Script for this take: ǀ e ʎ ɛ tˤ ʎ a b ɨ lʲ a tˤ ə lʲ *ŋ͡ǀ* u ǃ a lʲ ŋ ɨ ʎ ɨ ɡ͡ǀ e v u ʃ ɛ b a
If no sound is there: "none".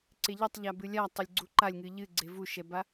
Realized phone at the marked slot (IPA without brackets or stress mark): ɡ͡ǀ